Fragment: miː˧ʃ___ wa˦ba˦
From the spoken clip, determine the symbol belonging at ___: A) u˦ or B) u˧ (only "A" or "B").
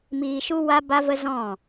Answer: A